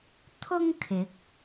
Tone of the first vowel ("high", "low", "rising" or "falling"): high